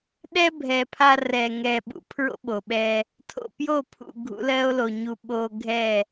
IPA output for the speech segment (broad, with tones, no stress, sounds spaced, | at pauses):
ɗ ɛ˦ bʱ ɛ˨ pʰ a˧ r ɛ˨ ŋ ɛ˨ ɓ ṵ˨˦ pʰ ɹ o̰˦ ɓ o˨ ɓ ɛ˧ | tʰ o̰˨ p j o˦˨ pʰ ṵ˨ ɡʱ ṵ˨˦ l ɜ˦ o̯ l o˨ ɲ u˧ ɓ o˧ ɡʱ ɛ˦˨